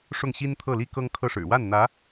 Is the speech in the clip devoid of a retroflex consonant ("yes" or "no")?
no